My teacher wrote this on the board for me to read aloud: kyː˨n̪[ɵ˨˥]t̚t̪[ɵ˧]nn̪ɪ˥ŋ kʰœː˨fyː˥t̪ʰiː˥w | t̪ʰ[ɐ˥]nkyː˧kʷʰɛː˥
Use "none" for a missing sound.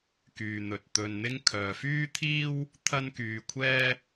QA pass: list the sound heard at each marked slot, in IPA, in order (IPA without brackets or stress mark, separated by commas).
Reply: ɵ˨, ɵ˧, ɐ˥